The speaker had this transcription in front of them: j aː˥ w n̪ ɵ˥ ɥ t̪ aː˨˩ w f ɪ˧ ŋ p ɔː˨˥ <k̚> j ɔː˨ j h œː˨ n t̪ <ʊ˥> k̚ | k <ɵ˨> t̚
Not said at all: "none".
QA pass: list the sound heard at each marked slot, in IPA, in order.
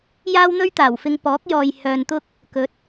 k̚, ʊ˥, ɵ˨˥

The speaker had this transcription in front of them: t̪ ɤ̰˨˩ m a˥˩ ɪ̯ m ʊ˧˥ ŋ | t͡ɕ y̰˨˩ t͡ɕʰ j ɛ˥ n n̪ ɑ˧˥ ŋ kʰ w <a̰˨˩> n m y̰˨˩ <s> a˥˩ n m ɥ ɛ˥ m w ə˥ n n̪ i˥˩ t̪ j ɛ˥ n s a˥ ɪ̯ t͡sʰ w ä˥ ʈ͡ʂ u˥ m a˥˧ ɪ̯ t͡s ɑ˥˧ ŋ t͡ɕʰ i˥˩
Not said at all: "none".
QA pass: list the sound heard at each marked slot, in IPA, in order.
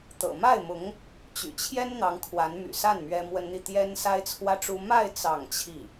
a˧˥, s

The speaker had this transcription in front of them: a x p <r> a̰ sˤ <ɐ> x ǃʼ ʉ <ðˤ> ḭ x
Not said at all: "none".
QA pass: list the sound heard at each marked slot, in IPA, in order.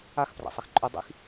r, ɐ, dˤ

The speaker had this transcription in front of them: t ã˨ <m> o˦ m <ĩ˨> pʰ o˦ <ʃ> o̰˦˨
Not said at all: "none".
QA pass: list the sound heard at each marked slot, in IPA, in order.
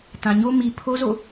ɲ, i˨, z

